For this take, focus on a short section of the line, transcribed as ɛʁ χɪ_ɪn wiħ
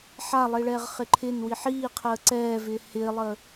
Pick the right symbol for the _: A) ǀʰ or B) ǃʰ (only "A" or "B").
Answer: B